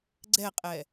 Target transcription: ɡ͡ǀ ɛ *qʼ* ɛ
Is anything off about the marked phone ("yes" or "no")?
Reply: no